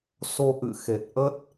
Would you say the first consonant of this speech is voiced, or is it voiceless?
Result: voiceless